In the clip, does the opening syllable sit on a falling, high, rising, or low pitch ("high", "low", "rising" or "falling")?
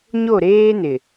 falling